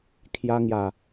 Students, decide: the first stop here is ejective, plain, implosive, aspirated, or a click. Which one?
aspirated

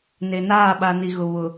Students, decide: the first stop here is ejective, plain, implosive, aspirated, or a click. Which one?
implosive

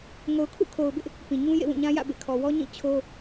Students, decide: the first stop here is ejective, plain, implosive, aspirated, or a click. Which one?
aspirated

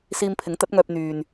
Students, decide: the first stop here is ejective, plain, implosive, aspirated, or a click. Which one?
aspirated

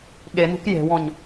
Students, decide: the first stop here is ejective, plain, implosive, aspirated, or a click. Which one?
implosive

